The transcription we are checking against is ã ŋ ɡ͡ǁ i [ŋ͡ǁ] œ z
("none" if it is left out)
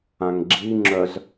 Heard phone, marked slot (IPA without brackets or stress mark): ŋ͡ǁ